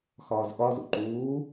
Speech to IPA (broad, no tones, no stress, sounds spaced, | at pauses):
x ɒː z ɠ ɒ z ṵ ǃ uː